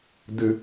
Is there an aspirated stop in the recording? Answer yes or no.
no